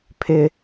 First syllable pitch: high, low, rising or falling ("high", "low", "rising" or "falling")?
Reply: high